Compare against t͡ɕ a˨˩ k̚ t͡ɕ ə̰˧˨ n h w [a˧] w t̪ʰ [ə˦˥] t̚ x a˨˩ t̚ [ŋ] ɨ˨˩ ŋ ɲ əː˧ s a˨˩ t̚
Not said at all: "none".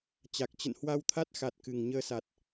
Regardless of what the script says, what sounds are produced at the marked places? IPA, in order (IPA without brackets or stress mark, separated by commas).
a˧, a˦˥, k